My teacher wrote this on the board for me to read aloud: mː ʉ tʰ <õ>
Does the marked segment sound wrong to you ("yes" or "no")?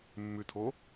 yes